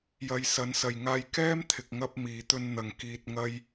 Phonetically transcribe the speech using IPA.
jɐ˨˧jsɐ˨˥nsɐ˨j ŋaː˧j kɛː˥mt̪ʰɪ˨k̚ŋɐ˧p̚ miː˨t̪ɵ˧nn̪ɐ˨ŋ kiː˨t̚ŋɐ˧j

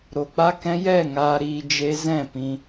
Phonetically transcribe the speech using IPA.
ɾo˨k͡pa˧kɛ̃˧jɛ˦˨ ŋaː˧ɾiː˧ d͡ʒe˧zɛ̃˦˨ pĩ˧

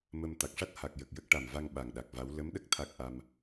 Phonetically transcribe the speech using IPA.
mə˧m t̪a˨˩k̚ʂa˦˥t̚ ha˨˩k̚ jə˨˩k̚jə˦˥k̚ʈa˨˩mva˧ŋ ɓa˨˩ŋɗa˨˩k̚va˧˥w lə˧˥mɗə˦˥k̚ t̪ʰa˦˥k̚ʔa˧m

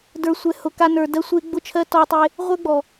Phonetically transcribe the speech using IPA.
də˞˧sʷɛ˧ hʊ˧ka˦nə˞˧ dɜ˦sʷe˦ ɡ͡bʊ˦t͡ʃʰɜ˦ tɔ˦tˤe˦ | ʁʷə˞˦ɡ͡bɔ˨

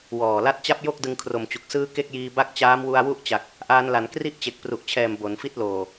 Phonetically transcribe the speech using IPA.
wɔː˨˩ la˦˥t̚t͡ɕa˦˥p̚ jo˥˩k̚dɯ˧ŋ kʰro˨˩mt͡ɕu˨˩k̚sɯː˦˥ ke˥˩k̚jiː˧ ba˥˩k̚t͡ɕaː˦˥mwu˧a̯ wu˥˩ʔt͡ɕa˨˩k̚ | ʔaː˧nla˩˦n kri˥˩ʔt͡ɕe˨˩k̚pru˨˩ʔt͡ɕʰɛː˨˩m bo˩˦nfi˥˩t̚loː˨˩

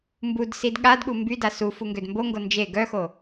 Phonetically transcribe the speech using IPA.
mbudsid ɠadɠu mbyda su fuŋɡødmboŋɡo nd͡ʒe ɡœxo

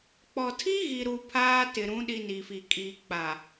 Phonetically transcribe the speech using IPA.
k͡pɔ˨tʰi˦ɣi˨ɾu˨ pʰaː˦tɪ˨ɾũ˨˦ ɗi˨ ni˨fi˨ kʼiː˨k͡pa˨

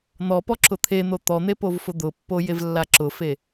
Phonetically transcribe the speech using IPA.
n̪ɔpɔ ǁʊt̪ʰen̪o t̪ɔn̪e povfʊd̪ʊpːo jevlːaǁʊfe

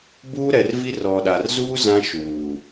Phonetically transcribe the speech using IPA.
buː˦ɾɛ˨rvi˦ rɔ˨ɗa˨rzuː˦ zã˦ʃuː˨

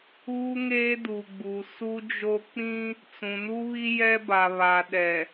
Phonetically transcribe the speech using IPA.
uː˦ŋeː˦ du˨ɡ͡bu˨ su˦d͡ʒo˦ k͡pĩ˦ | t͡sũ˨nu˦βi˦ jɛ˦ba˨ βa˨ɗɛ˨

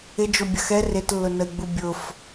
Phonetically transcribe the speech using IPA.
ɪd͡ʒobʲɐx ɛ rɪtlːʊnəi̯ɡ͡bu bʲʊf

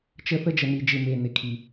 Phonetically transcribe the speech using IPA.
t͡ʃə˦θə˦ d͡ʒə˨ni˨d͡ʒɪ˨ me˨nɪ˨kʰi˨

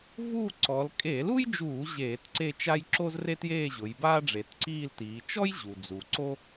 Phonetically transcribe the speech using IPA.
vuː˥˧ǀɔ˩˧l kʼe˧˩˧lu˥jd͡ʒuː˧˩˧ ʑeː˧˩˧tǀe˥˧t͡ʃa˥j ǁo˥zre˥tjeː˥˧ʑʊ˩˧j baː˥ɖ͡ʐe˩˧tǀiː˥˧ltiː˩˧ t͡ʃɔ˥jʑu˩d͡zu˩ ǀo˥

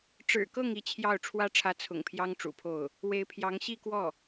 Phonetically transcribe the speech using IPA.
ʈ͡ʂɻ̩˨˩kɤ˥˧ŋ i˥˧t͡ɕʰjɑ˥˩ʊ̯ ʈ͡ʂʰwä˥ʈ͡ʂʰä˧˥ t͡sʰʊ̰˨˩ŋpʰjɑ˥ŋ ʈ͡ʂṵ˨˩pʰo˥˩ʊ̯ | we˧˥ɪ̯pʰjɑ˧˥ŋ ɕi˥˧kwɔ˥˩

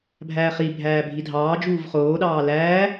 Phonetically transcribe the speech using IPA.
bʱæːχibʱæː bʱidʱɑːd͡ʒuːv χoːɗɑː læː

